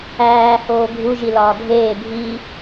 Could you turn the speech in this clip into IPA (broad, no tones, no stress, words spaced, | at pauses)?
æː hoːɡʱu ʒilɒːɡʱeː bʱi